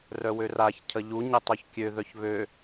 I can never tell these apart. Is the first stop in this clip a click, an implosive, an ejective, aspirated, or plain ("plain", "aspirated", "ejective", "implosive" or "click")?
aspirated